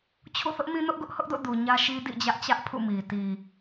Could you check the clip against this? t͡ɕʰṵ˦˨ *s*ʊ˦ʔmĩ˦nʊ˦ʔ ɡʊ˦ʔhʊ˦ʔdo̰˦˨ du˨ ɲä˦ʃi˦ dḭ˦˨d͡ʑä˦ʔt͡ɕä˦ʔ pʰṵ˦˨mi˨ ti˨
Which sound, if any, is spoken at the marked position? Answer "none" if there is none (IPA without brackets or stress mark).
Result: θ